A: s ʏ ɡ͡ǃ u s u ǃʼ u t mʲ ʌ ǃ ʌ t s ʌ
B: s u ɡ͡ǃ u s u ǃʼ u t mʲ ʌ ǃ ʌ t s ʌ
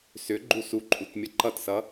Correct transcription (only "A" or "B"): A